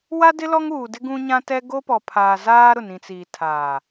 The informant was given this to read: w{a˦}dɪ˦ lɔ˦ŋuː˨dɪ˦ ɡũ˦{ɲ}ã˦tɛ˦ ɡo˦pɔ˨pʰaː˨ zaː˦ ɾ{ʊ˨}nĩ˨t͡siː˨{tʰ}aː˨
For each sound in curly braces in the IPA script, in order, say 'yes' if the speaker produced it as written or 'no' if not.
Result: yes, yes, yes, yes

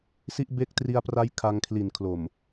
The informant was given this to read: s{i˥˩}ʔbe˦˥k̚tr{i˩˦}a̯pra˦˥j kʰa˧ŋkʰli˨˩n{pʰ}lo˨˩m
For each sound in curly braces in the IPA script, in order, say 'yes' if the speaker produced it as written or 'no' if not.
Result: no, no, no

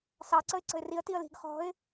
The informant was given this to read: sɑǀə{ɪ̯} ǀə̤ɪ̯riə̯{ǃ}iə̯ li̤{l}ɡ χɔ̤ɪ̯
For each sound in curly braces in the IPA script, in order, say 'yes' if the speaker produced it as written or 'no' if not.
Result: yes, no, no

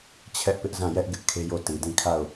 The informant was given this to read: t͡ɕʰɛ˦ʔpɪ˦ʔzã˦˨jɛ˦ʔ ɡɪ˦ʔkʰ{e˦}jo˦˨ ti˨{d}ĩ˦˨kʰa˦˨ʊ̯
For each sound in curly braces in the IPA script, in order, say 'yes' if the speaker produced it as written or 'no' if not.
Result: yes, yes

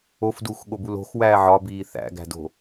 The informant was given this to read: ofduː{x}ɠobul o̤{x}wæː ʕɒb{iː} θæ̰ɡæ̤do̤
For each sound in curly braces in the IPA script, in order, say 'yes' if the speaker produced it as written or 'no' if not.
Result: yes, yes, yes

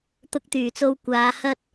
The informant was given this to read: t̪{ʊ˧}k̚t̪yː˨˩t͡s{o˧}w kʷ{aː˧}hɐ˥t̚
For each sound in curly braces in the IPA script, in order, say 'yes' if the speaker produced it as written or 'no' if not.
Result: yes, yes, no

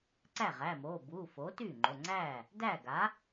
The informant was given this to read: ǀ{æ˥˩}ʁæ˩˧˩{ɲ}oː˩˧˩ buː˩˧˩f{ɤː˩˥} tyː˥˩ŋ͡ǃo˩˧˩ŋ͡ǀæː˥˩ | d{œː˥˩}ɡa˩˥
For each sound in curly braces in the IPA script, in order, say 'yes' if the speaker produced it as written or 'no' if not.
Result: yes, no, no, no

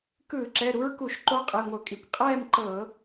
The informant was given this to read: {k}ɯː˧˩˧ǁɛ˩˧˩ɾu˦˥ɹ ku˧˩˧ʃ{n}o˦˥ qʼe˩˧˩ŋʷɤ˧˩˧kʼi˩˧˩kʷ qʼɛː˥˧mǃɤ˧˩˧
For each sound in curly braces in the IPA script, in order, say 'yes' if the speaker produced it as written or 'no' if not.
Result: yes, no

